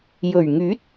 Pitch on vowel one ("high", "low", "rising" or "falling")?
low